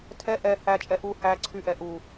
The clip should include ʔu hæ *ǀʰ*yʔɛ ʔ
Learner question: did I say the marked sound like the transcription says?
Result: yes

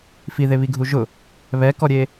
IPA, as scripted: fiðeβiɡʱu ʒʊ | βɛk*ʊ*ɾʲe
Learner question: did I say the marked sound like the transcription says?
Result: no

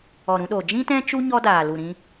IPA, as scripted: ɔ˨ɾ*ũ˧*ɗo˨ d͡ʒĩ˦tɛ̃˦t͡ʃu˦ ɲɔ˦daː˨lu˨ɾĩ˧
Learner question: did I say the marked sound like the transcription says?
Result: yes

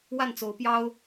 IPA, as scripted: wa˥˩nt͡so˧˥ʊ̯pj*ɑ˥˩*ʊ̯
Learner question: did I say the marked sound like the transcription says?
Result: no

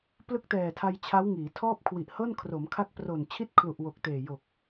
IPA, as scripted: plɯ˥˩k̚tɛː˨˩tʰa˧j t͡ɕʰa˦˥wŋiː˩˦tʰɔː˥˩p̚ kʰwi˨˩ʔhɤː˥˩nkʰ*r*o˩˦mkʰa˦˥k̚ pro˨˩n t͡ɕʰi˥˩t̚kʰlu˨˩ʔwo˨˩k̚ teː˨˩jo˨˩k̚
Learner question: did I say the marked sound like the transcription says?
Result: yes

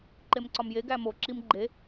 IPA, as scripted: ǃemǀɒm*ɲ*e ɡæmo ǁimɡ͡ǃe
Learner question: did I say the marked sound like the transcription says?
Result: no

